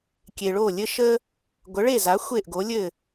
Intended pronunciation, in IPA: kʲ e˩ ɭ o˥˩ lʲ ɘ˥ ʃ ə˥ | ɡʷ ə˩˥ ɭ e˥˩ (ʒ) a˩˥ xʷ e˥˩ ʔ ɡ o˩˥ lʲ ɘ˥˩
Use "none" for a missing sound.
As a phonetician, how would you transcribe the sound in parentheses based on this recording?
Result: z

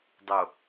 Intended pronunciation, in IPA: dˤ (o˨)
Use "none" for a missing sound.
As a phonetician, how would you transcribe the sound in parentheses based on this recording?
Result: o˨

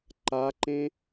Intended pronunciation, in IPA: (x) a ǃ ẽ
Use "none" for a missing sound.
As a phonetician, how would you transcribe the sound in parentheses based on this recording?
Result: ǃ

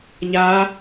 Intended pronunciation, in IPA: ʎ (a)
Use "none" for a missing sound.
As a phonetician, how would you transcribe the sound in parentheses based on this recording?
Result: a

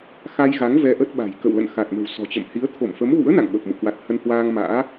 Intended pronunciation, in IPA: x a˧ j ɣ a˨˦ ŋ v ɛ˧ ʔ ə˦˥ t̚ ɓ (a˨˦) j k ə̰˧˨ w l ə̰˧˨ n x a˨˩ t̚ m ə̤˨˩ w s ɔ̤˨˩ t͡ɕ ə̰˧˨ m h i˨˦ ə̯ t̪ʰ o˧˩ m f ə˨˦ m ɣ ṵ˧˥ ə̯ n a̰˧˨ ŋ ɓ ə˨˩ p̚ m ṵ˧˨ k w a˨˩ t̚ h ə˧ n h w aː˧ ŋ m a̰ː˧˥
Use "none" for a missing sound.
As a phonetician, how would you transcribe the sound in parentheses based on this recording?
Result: a̤˨˩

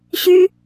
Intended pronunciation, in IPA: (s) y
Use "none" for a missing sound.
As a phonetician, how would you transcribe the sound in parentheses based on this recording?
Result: ɕ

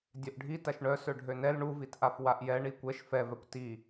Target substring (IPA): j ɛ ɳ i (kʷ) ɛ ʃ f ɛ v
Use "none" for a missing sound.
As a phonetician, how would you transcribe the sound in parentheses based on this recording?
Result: kʷ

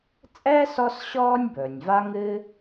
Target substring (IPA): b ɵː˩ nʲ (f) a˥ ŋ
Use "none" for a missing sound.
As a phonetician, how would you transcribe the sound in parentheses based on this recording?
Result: v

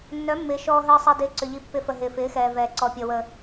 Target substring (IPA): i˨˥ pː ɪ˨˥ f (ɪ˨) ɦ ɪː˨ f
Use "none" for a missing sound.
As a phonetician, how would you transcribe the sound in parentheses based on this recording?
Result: ə˨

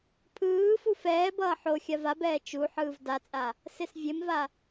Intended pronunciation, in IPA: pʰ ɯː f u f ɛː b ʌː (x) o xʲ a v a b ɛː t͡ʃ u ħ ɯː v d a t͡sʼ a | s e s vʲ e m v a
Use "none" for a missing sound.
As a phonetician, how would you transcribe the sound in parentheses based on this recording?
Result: ħ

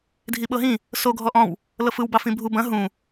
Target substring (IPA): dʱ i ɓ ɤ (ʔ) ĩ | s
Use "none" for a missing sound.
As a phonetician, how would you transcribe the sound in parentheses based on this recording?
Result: ɦ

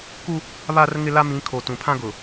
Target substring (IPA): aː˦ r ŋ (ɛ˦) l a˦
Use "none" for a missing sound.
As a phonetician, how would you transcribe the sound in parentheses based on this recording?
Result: ɪ˦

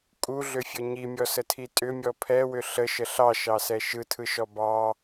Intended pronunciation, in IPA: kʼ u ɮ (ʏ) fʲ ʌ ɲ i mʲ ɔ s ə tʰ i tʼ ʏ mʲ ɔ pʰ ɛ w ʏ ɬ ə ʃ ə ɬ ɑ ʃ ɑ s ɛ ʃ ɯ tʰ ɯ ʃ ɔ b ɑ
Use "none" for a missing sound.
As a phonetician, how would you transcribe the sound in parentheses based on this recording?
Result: ʏ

